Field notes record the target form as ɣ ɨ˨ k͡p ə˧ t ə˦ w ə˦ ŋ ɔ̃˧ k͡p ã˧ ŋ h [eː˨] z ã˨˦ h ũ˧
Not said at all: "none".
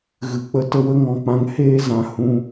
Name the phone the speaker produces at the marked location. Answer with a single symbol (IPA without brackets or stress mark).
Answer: eː˦